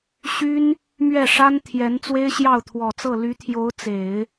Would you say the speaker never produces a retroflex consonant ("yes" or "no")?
no